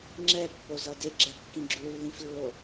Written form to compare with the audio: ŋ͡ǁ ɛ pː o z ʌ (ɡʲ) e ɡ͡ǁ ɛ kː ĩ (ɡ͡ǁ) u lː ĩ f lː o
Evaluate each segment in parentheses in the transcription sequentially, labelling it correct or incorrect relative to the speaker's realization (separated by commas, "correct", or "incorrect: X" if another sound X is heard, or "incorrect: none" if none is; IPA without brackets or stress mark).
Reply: incorrect: d, correct